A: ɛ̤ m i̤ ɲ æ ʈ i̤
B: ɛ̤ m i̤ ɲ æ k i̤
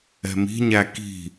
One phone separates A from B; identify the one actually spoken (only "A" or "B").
B